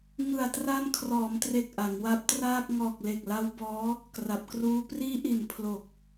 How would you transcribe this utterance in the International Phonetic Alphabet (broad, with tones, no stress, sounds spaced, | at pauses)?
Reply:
ŋ ɯ˨˩ a̯ t r a˧ n kʰ r ɔː˩˦ m t r e˨˩ k̚ ʔ a˩˦ ŋ w a˦˥ p̚ t r aː˥˩ k̚ ŋ ɔː˨˩ k̚ l e˨˩ k̚ l a˦˥ w b ɔː˦˥ | k r a˨˩ p̚ k r uː˦˥ p r iː˦˥ ʔ i˨˩ n pʰ l o˨˩ k̚